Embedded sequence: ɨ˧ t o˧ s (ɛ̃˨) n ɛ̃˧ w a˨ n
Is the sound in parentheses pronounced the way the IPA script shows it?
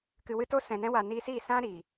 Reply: yes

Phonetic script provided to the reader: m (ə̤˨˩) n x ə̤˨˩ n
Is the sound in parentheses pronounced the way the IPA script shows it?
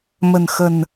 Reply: yes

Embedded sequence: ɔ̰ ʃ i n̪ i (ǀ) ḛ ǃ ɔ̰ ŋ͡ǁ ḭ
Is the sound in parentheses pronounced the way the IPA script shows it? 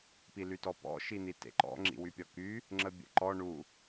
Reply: no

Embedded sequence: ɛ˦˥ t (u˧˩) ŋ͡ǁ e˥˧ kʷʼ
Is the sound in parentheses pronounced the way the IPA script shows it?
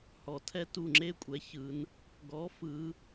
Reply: yes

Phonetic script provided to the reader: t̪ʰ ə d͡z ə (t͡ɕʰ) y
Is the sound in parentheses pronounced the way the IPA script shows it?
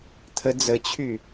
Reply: yes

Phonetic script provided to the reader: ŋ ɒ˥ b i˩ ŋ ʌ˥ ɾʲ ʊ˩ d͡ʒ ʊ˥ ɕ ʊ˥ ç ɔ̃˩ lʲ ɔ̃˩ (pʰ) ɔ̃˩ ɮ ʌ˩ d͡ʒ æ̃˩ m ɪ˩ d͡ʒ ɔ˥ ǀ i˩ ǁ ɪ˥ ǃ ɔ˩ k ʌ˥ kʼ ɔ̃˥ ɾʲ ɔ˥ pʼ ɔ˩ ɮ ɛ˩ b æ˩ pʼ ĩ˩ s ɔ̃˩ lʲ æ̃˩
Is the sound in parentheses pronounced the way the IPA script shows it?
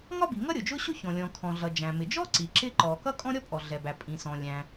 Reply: no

